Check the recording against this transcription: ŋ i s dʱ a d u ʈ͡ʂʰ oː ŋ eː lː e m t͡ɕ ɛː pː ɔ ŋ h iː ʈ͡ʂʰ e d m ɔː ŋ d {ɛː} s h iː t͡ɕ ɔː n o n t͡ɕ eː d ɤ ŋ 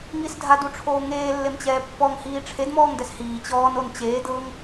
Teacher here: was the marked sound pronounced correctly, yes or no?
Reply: no